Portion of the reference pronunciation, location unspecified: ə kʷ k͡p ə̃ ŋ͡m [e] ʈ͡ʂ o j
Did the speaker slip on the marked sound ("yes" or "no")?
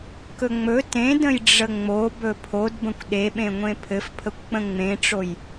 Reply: yes